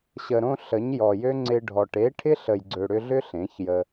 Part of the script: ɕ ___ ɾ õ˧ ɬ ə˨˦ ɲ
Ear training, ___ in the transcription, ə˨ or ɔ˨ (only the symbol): ə˨